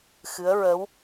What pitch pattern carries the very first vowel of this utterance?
rising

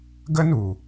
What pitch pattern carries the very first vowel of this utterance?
high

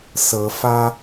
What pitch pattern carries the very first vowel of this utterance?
rising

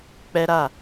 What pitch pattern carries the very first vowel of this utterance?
high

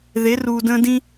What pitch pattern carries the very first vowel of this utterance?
rising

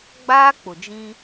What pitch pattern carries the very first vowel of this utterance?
high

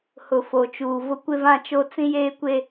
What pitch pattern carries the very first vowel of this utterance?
low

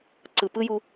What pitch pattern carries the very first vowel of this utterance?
low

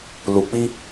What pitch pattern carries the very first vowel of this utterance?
low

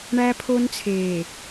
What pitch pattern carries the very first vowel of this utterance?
high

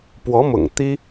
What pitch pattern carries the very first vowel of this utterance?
rising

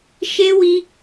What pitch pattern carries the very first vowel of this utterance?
high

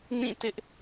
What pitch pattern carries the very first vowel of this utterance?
falling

